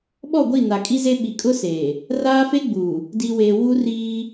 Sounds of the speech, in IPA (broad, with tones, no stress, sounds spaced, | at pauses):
ɓ ɔ˦˨ ɡʷ i˦˨ n a˨ kʼ i˦ z e˦ ɓ i˨ kʼ ʊ˦ s eː˨ | r aː˦ f e˦ ɡ͡b uː˨ | d i˨ w eː˨ w u˦ r iː˦